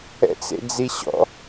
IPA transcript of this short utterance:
ɛ̰ t͡s ḛ d͡z i ɕ ɔ̰

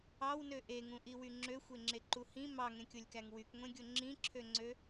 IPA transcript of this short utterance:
ɑ w n ø ʔ e ŋ ũ ʔ i w y ŋ͡ǁ ø xʷ e ŋ͡ǁ e ǃ u h ĩ m ɑ ŋ ẽ kʲ o lʲ k æ ŋ w y k ŋʷ ẽ ɡʲ o ŋ͡ǁ ĩ ǁʰ ø ŋ͡ǀ ø

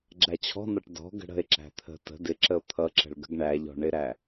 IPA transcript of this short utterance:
ɡ͡ǁ æ t͡ɕʰ ɔ̤ n ɒ ʈ d ɔ̤ ɡ ə̤ ɽ ə̤ e̯ ǁ æ̤ t̪ʰ ə̤ t ə̤ d ɪ ǁ ə o̯ t̪ʰ ʌ ǁ ə̤ ɭ ɡ ə̤ ɡ ɳ æ ʎ ɔ̤ ɳ ɪ ɾ æ

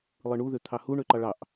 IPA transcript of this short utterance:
lˠ ɯ ɳ u ð ø t̪ʰ ɑ h u ɳ ø ǃ ɑ ɭ ɑ ʔ

